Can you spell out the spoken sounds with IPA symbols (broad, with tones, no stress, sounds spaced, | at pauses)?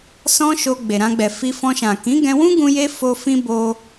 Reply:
s ɔ̃˦ ʃ o˧ ɡ͡b e˨ ɾ ã˧ ɡ͡b ɛ˨ f i˧ f ɔ̃˧ ʃ ã˨ k ĩ˨˦ ɡ ɛ̃˧ w ũ˦ ɡ ũ˦ j e˦ f o˧ f ĩ˦ b o˧